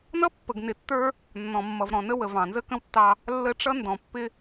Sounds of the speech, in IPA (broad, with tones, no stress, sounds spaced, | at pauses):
n ʌ˦ pː ə˨ ɡ n ɪ˨ tː ə˞˦ | nː ɔ̃˨ mː ʌ˨ v ɾ ɔ̃˨ n ə˦ w ə˨ v ɑ̃˨ n z ə˦ k ə̃˦ w tː ɑ˦ | lː ə˦ ʈ͡ʂ ʌ˦ n d ɔ̃˨ pː ɪ˦